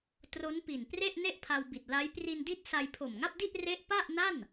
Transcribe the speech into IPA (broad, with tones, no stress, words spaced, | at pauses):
tro˦˥npi˨˩npre˥˩ʔ ne˥˩ʔpʰa˧wbi˨˩t̚ la˦˥j pri˧ndi˦˥t̚ sa˧jpʰo˨˩mŋa˥˩p̚di˥˩ʔ re˦˥ʔ pa˥˩ʔna˥˩n